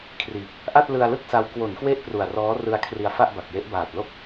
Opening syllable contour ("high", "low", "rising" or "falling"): low